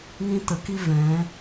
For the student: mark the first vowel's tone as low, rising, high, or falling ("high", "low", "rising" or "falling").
high